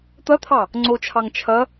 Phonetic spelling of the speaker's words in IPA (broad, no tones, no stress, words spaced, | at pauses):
t̪ɐt̪ʰɑ | ŋ͡ǀot͡ʃʰɑŋ t͡ʃʰɐ